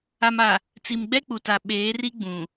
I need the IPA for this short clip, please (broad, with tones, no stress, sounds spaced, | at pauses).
a˨ m a˨ | t͡s i˨ m ɡ͡b ɛ˦ k͡p u˨ t a˨ ɓ eː˨˦ r i˦ ɡ͡b ũ˨